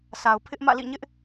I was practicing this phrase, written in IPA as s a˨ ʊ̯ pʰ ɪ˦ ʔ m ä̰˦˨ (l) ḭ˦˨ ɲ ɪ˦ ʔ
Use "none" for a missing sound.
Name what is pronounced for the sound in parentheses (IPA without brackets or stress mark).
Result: l